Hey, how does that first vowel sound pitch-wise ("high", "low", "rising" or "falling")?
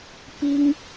high